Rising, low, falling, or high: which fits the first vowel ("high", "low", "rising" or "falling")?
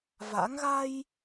rising